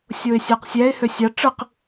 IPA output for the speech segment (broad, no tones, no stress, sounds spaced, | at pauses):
sʲ o ɪ̯ sʲ æ q sʲ æ ɪ̯ h ø sʲ ɑ ʈ͡ʂ ɯ q